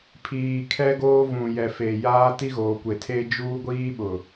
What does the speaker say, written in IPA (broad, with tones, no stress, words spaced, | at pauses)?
pʰiː˨kʰɛ˦ɡoː˦vũ˨ jɛ˨fe˨jaː˦ ti˦ɣoː˨kʷe˨tʰe˦ d͡ʒuː˦ɡʷiː˦ɓʊ˨